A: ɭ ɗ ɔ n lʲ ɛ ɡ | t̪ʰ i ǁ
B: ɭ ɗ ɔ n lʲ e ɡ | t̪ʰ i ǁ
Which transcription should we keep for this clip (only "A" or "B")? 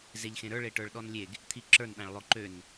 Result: B